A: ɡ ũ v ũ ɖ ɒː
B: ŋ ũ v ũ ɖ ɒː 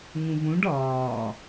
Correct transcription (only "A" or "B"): B